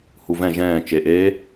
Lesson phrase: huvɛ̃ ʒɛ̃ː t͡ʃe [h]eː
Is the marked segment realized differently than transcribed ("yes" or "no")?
yes